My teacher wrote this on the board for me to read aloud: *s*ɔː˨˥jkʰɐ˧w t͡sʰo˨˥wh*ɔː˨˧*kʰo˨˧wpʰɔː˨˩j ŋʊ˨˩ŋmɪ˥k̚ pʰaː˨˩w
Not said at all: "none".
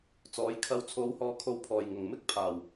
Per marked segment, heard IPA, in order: t͡s, ɔː˨˧

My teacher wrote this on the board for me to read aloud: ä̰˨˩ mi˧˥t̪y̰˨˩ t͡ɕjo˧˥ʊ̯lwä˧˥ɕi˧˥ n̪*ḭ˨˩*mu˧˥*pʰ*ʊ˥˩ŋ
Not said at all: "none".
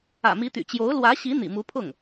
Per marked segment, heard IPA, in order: ḭ˨˩, pʰ

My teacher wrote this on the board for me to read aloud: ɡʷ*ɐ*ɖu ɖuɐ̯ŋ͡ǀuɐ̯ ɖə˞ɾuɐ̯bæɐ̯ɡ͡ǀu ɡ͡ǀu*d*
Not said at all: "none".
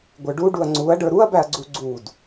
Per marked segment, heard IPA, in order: ə˞, d

